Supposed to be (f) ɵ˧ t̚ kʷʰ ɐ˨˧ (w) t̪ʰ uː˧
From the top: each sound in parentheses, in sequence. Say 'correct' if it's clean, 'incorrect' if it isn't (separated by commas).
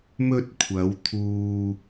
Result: incorrect, correct